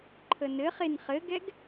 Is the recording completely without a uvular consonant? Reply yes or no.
no